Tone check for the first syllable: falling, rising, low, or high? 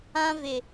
high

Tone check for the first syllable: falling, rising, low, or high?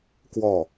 falling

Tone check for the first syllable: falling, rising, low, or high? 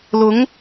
rising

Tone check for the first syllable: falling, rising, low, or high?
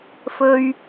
high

